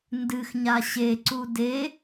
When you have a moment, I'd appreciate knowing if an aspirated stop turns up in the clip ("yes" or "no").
no